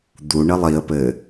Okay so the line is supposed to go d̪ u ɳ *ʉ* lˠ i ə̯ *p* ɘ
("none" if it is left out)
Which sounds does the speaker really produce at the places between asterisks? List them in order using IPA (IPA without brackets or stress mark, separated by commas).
ɘ, p